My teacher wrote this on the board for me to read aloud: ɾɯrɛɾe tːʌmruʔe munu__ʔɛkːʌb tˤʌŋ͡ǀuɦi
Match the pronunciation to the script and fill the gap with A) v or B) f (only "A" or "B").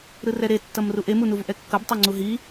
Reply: A